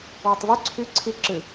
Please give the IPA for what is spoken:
wʊtˤvy ǀʰy ǀʰi ǁɨ

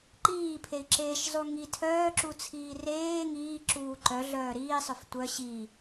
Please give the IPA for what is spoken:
ǃiːpʰei̯ǁeːʃ zˤuŋi tʰœːǁut͡sʰiː reː ŋiːǁuː ǃœ ɮœːɾiːsˤœf tʷœ ɕi

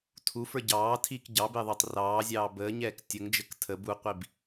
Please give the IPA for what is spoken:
tʰufə˞ ɟɑːtʰiːk ɟɑbɪːðˤəːtˤ rɑːzʲɑː bəːɲɛːk tʲəŋd͡ʒək tʰə buqʷib

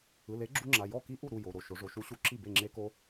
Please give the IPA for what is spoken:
ɯ˩˧˩le˨˥ ɡ͡ǁu˦˥ŋ͡ǁa˩˧˩ jɔ˥˩ki˦˥ ʔu˥˩ɾu˥˩ jo˩˧˩ɾo˥˩ ʃo˩˧ʐo˩˧ʃu˨˥ɕu˨˥ ǁi˥˩be˥˩ŋ͡ǁe˦˥ko˦˥

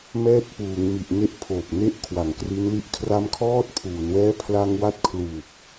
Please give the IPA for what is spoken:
mɛː˦˥t̚puː˩˦ŋmi˨˩ʔ ne˦˥ʔ pʰoː˨˩p̚ne˦˥ʔkʰwa˨˩ŋ kri˦˥nli˦˥ʔ kʰra˧mkʰɔː˦˥t̚pʰuː˩˦nwɛː˦˥ pʰla˧ŋwa˦˥t̚kʰluː˨˩p̚

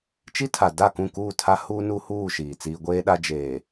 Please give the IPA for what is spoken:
t͡ʃi˦tʰa˨ da˦˨kũ˦˨kuː˦˨ tʰa˦huː˦ nu˦huː˦˨ ʃiː˨t͡siː˦ ɡʷeː˦ɗa˦ d͡ʒeː˨

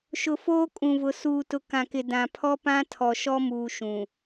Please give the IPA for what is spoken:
ʃʊ˨foː˦kʼũ˨vʊ˨ suː˨tʊ˨ kã˨kɪ˨ dã˨ pʰɔ˦pã˦ tʰɔ˨ʃɔ˦muː˨ ʃũ˨

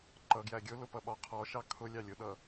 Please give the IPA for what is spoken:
ǃʌ ɡjæɡʲʊlʊ pʌɓɒqʰɔʃɑ kʰʊ lʲɑlʲʊɗʌ

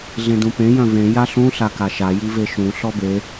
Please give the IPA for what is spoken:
ɮẽdũpẽ jœ̃vẽ jaɬũ ɬakaʃa jiveʃũ ɬɔbe

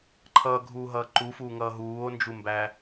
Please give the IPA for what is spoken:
ǃʰʌːɡʱuːɦʌː ǃufuːŋʌː ɦuːo̯nd͡ʒumbæ

